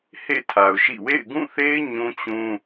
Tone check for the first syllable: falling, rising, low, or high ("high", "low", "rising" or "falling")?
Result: falling